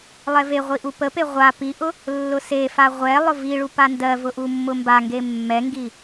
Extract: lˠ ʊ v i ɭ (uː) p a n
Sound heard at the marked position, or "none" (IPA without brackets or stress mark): u